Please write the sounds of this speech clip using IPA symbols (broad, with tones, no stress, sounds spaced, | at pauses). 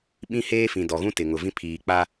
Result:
ɓ ĩ˦ h eː˦ f ĩ˨ d ɔ˨ ɣ ũ˦ t ɪ˨ ŋ ʊ˨ v ĩ˦ pʰ iː˨ k͡p a˦